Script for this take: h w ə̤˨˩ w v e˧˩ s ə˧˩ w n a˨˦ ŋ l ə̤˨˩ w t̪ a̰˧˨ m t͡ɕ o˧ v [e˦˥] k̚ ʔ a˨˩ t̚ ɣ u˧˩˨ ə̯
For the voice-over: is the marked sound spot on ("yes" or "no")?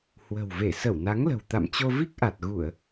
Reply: no